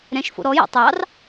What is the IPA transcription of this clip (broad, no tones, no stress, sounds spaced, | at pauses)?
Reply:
ɾ ɛ̃ ʃ f o̰ ɾ ɔ j ɛ̰ tˤ ɑ r